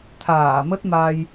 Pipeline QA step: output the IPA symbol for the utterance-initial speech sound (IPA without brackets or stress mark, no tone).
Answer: t̪ʰ